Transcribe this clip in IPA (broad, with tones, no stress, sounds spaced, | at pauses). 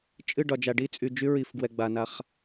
t͡ʃʼ ɨ˦˨ ɖ ɒ˨ d͡ʒ a˨ ɖ i˦ t͡sʼ y˨ d͡ʒ y˦ ɹ i˨ f ɡ w ɛ˨ ɡ͡b a˨ n a˦ χ